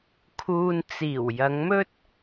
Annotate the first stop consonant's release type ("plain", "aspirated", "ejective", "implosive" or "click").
aspirated